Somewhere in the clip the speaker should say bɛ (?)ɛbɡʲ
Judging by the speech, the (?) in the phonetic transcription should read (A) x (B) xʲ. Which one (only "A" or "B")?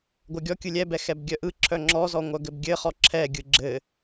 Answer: A